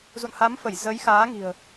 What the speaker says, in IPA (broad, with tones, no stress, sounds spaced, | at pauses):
z ṵ˧˨ n h a˨˦ m f ə˧˩ j z ə˨˦ j x aː˨˦ ŋ i̤˨˩ ə̯